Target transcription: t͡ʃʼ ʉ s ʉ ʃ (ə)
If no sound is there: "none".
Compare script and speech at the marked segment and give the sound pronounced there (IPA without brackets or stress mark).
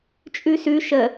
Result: ə